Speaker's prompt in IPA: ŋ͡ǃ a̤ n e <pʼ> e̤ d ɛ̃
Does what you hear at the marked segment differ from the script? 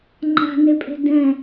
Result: no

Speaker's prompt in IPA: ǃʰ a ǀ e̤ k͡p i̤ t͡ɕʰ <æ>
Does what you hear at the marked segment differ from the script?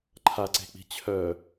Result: yes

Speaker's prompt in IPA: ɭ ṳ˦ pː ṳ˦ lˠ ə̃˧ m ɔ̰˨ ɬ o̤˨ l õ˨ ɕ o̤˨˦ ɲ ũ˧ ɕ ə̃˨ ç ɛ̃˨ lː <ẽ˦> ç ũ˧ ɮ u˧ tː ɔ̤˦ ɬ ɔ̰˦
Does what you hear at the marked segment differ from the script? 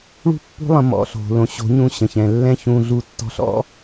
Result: yes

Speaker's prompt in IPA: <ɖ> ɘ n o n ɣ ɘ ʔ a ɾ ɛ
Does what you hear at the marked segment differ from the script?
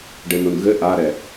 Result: no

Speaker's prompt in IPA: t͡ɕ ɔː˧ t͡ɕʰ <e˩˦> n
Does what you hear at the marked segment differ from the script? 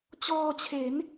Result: no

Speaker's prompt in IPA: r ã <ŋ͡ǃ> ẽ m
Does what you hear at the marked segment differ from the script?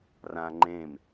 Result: no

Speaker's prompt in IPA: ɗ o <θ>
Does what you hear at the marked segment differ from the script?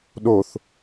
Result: no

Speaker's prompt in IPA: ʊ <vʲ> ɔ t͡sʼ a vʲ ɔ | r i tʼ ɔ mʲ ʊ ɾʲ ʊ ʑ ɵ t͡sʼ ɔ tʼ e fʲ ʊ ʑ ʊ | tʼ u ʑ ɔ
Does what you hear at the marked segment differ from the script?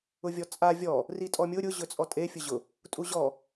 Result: no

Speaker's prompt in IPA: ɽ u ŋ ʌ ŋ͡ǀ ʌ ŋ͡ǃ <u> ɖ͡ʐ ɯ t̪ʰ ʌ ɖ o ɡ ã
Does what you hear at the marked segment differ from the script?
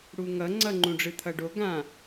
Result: yes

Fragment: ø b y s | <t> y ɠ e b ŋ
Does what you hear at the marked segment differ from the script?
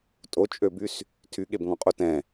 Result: yes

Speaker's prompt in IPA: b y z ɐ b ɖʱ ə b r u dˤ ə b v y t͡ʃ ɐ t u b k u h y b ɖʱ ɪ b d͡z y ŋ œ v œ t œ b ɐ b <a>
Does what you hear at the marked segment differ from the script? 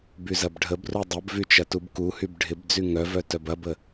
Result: yes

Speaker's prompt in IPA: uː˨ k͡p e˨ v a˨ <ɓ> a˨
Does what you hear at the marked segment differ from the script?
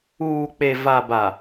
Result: yes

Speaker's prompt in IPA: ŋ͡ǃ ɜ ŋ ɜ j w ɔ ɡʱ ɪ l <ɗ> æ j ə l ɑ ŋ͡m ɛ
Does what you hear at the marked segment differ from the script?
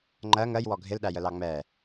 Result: no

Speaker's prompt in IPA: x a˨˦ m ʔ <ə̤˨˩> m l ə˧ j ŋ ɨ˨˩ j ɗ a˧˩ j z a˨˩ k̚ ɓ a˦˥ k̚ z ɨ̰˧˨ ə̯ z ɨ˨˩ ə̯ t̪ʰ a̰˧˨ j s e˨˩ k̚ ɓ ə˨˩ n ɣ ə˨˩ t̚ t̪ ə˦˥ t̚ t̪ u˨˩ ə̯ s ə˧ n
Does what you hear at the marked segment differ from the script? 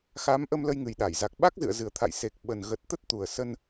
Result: yes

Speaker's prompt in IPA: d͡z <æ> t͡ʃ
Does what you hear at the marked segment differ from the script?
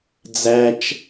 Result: no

